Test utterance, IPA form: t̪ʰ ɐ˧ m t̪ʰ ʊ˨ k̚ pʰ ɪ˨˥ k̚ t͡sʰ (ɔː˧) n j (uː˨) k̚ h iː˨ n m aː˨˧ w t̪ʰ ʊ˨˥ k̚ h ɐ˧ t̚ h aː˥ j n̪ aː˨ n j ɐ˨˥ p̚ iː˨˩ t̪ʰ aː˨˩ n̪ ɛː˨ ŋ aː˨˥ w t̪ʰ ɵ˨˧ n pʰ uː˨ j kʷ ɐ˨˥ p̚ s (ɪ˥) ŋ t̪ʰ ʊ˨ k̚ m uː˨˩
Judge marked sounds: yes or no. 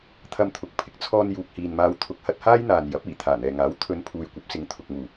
yes, yes, no

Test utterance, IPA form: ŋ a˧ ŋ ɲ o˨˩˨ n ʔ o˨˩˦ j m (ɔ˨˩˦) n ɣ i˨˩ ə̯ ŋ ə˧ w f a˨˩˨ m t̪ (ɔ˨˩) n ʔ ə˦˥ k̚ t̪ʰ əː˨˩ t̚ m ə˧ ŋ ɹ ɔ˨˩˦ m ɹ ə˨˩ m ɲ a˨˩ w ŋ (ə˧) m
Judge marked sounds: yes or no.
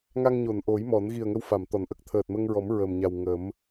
yes, no, no

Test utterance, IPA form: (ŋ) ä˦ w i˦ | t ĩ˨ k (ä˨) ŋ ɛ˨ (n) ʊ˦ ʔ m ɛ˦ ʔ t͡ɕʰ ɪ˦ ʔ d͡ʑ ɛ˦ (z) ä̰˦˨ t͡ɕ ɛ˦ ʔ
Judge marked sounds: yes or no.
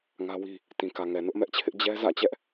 yes, yes, yes, yes

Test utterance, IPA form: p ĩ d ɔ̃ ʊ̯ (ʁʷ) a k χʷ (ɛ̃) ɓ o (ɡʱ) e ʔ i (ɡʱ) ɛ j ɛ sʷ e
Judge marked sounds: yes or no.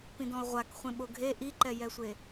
yes, no, yes, no

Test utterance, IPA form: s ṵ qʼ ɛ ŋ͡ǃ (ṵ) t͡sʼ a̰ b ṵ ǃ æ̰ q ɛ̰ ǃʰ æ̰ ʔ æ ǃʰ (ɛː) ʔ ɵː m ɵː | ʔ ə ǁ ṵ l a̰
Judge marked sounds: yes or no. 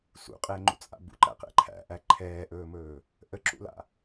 yes, yes

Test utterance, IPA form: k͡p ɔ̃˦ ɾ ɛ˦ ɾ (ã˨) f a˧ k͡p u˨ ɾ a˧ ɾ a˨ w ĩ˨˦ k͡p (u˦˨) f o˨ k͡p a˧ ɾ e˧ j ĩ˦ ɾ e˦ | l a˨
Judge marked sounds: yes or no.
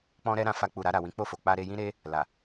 no, no

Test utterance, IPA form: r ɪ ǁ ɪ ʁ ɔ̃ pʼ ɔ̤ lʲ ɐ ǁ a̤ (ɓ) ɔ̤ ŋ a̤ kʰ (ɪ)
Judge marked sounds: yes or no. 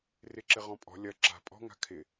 no, yes

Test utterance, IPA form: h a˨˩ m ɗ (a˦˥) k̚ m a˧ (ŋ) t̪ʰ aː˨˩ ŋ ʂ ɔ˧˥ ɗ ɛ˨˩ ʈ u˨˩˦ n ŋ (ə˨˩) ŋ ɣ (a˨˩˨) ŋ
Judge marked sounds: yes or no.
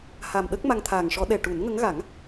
no, yes, no, no

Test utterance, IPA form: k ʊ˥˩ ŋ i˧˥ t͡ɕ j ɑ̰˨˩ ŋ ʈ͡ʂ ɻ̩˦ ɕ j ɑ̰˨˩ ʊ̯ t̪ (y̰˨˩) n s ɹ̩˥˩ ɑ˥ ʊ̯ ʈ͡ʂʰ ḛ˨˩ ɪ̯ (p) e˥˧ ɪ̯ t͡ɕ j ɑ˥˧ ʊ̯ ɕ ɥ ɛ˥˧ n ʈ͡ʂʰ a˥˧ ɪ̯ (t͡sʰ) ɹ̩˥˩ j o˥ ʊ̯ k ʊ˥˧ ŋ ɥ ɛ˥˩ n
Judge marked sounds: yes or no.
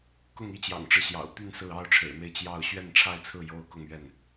no, no, yes

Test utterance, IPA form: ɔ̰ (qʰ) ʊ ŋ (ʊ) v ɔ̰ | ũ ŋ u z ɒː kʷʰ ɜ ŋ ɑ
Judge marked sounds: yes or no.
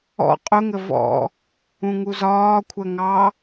no, no

